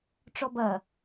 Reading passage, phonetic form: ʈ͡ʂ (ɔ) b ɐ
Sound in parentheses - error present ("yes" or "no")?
no